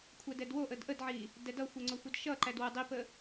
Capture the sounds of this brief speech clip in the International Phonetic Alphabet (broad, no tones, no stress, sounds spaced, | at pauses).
kʷʰ ɛ d ɛ d w o ʔ ə d ʔ ə d ʕ i | d ɛ d ʌ xʷ ɛ ŋ͡ǀ o xʷ ʌ d ʃ ʌ ǃ æ d w ə dˤ i p ə